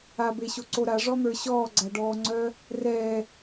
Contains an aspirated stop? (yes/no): no